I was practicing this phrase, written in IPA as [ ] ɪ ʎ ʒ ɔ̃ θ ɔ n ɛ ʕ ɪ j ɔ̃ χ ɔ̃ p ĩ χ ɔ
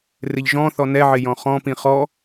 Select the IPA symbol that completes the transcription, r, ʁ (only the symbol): r